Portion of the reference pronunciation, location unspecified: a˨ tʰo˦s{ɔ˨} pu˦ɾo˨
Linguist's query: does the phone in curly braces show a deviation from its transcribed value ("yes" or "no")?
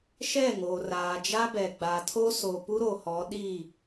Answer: yes